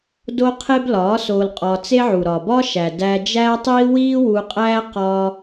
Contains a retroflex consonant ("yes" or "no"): no